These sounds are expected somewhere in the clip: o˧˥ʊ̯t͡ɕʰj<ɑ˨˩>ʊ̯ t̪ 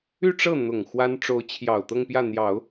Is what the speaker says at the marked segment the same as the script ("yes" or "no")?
yes